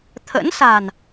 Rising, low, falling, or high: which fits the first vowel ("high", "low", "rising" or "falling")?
rising